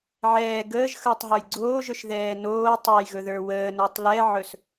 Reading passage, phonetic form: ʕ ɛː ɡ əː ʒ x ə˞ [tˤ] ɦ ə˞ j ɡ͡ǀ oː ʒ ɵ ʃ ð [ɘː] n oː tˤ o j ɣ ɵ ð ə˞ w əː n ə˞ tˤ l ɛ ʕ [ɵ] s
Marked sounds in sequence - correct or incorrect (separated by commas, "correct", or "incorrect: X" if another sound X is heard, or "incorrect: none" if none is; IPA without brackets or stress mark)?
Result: correct, incorrect: ɛː, correct